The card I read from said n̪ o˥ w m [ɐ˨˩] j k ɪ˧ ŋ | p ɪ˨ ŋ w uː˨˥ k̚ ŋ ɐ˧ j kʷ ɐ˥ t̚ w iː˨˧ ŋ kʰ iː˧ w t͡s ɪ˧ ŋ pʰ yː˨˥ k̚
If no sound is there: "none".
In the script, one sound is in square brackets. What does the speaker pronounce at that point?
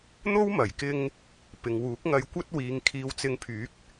ɐ˨˩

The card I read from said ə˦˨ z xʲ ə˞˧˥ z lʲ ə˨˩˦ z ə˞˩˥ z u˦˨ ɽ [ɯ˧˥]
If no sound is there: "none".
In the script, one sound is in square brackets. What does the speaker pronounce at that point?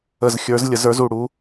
u˧˥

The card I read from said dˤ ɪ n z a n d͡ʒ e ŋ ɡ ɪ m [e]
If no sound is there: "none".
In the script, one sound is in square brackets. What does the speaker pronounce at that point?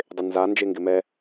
ɛ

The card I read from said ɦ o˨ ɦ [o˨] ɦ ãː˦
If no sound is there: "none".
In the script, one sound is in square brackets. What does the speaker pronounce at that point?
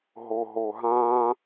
o˨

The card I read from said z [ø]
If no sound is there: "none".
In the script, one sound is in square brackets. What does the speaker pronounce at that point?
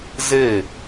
e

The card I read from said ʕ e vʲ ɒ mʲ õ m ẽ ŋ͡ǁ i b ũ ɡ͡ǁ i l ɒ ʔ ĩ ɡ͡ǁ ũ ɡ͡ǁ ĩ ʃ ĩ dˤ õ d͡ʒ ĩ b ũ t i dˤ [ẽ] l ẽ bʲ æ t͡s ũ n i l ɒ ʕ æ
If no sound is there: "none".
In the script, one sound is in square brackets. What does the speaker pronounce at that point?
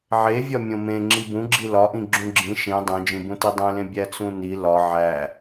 ẽ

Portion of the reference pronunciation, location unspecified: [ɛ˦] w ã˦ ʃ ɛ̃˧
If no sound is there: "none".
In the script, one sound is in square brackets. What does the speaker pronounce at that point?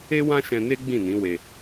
e˦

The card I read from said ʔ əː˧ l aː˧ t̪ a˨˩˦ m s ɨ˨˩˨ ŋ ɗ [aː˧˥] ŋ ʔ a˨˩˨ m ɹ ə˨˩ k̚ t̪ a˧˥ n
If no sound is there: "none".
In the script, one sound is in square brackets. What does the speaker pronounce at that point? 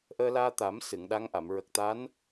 a˧˥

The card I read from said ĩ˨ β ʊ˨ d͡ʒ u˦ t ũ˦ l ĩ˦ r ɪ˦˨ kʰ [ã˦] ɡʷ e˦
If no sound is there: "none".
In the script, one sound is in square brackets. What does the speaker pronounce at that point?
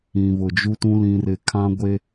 ã˦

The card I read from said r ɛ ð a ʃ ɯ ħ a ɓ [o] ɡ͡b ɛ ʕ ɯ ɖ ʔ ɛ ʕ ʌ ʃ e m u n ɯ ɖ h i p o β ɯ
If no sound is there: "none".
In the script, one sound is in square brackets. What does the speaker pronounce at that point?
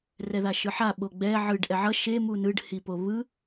o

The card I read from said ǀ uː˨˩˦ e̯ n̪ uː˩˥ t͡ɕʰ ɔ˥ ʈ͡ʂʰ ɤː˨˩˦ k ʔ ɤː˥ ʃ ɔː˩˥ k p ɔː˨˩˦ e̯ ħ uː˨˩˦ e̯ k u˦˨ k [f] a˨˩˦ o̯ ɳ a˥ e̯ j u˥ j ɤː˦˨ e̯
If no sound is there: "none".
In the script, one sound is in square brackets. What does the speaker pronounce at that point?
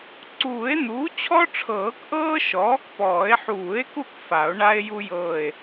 f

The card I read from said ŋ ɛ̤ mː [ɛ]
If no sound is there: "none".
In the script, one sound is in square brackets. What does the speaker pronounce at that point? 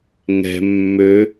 ø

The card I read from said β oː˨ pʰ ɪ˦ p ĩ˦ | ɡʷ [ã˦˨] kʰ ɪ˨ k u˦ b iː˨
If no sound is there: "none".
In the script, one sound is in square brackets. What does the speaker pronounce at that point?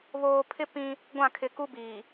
ã˦˨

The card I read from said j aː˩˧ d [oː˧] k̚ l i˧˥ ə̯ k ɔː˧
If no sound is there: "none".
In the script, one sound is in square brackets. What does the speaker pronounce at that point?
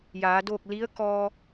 oː˥˨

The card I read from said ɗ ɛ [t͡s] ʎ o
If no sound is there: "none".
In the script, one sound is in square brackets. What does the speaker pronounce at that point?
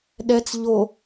t͡s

